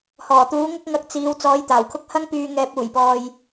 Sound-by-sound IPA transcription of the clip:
h ɔː˨˩ t̪ uː˨˥ ŋ ʊ˥ k̚ ŋ ɐ˧ k̚ t͡s iː˨˧ w t͡s ɔː˨˥ j t̪ aː˨˩ w kʰ ʊ˥ k̚ h ɐ˥ ŋ p yː˧ ŋ ɛː˧ p̚ uː˨˩ j p ɔː˨ j

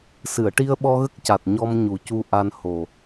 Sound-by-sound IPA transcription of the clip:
s ɨ˨˩˨ ə̯ ʈ i˧ ə̯ ɓ ɔ˧ ɣ ə˦˥ k̚ c a˨˩ t̚ ɲ ɔ˧ m ɲ u˨˩˦ c u˧ ʔ a˧ n h o˨˩

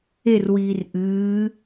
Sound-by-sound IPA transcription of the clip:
e r w iː r ʔ ɨː

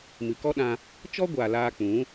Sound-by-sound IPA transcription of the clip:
m ɨ˨ k ɔ˦ ɗ ã˧ | t͡ʃ ɔ˦ ɡʷ aː˨ l aː˧ k͡p ũ˨˦

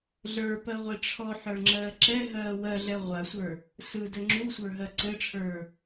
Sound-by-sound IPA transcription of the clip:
ɮ ə˞ p ɜ ʁʷ i ʈ͡ʂʰ ɔ ħ ə˞ ŋ͡ǁ ɜː ǁ ɛ ɦ ɜː w ɜ ɮ ɛ ʁʷ a sʷ ə˞ | s ɯ d ɘ ŋ͡ǁ u sʷ ə˞ ɦ ɜ ǀ ɘ ʈ͡ʂʰ ə˞

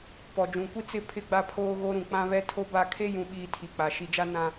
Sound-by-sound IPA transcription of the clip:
p ɔ˨ d͡ʒ ũ˨ kʷ i˦ t͡s ɪ˦˨ pʰ ɪ˦ ɡ͡b a˦ pʰ oː˦ ɣ o˦ ɾ ũ˨ k͡p ã˦ β ɛ˦ tʰ o˦ b a˦˨ kʰ e˦ j ũ˨ ɓ iː˨ tʰ i˨ k͡p a˨ ʃ i˨ d͡ʒ a˦ n ã˦

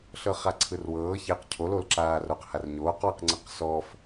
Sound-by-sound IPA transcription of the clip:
ɬ ɤ χ a ǀʰ ɯ r w ɤː ç e q cʰ o l o l ǁ aː r o q h a r ɲ oː q w ɯ q ŋ͡ǀ ɯ q s ɔ f

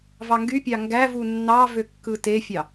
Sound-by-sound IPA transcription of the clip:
v ɑ ŋ ɡ y pʲ ɑ ŋ ɡ æ v u nː ɑ v ø kː ɯ t e fʲ ɑ

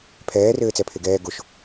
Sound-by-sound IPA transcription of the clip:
pʰ ɛː r ɘː t͡s ɛ pʰ e ɡ ɛː ɡ o ʃ

